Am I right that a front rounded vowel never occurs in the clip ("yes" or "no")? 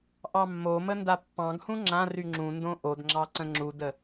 no